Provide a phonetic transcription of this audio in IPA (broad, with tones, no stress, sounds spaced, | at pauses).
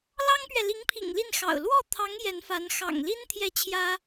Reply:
l ɑ˥ ŋ p ɥ ɛ˨ l i˧˥ ŋ pʰ ḭ˨˩ ŋ l i˥˩ n x ɑ̰˨˩ ʊ̯ l w ɔ˥˩ t̪ʰ ɑ˧˥ ŋ j ɛ˧˥ n f a˧˥ n x ɑ̰˨˩ ŋ l i˥ n t̪ʰ j ɛ˥˩ t͡ɕʰ j ä˥